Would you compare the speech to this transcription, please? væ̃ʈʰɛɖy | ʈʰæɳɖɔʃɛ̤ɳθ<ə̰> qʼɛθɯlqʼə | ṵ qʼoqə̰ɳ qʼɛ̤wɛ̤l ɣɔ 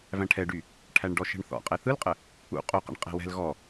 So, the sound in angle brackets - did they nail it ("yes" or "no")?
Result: no